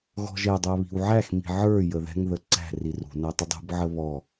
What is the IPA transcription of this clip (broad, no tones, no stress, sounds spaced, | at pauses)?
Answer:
ɣ ɔ̤ ʒ ɛ dˤ æ β i̤ w ʕ æ x m i̤ ʕ ə˞ j ə ð ɛ̤ ŋ ð ə ǀ æ̤ r i r ṳ n æ tˤ ə dˤ ṳ b ʕ ə β ɔ